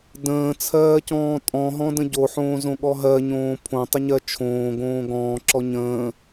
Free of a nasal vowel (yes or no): no